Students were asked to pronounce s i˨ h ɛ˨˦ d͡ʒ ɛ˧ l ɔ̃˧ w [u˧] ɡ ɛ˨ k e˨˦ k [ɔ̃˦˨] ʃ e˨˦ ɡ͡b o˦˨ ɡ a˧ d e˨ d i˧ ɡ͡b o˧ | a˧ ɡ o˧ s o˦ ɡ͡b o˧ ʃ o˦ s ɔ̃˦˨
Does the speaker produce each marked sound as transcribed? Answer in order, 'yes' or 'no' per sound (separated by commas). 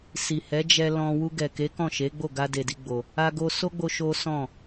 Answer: yes, yes